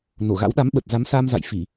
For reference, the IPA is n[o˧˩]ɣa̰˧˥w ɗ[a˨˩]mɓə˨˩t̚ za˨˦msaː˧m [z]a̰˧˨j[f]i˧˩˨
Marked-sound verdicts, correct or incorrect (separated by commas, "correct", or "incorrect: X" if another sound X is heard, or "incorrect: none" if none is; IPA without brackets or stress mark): correct, incorrect: a˨˦, correct, correct